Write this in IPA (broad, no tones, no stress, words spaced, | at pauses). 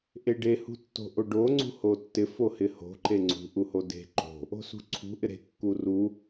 ʔeɖe hṳtːo̤ʔoɖo ŋ͡ǀṳhotːɪ fohɪho̤ ǃeŋ͡ǀṳ ʔuhode̤ ǃo̤ | o̤sṳǀʰṳ ʔɪɾe̤ kːuru